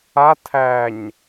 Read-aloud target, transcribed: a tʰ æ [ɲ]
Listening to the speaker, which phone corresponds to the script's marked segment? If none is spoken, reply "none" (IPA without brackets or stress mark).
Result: ɲ